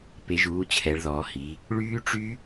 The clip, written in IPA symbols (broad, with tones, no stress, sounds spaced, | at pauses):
p e˩˧ ʒ uː˩˧ t͡ɕʰ ɛ˩˧ ɭ ð ɔː˩˧ h i˩˧ | ɭ yː˦˥ ʈ͡ʂ y˦˥